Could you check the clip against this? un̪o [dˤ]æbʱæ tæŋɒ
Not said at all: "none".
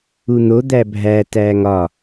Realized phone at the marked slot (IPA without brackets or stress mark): d̪